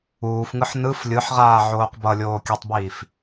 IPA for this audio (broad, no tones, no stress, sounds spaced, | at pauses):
uː f ŋ ɯ ħ n ɯ f lʲ ɯ ħ ʁ aː ʕ oː q b ʌ lʲ oː kʲ ʌ tˤ b iː f